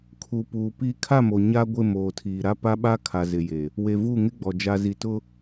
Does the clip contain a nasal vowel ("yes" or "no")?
no